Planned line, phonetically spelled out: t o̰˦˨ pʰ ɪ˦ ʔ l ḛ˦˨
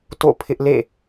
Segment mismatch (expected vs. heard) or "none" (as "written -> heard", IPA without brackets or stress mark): none